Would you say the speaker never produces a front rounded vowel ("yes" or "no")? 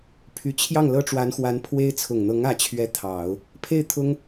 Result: no